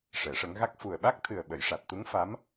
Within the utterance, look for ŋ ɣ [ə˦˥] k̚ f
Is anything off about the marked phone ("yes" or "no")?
yes